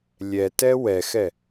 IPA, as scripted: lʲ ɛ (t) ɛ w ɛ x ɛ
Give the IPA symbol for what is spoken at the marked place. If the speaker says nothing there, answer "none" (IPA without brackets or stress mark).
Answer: t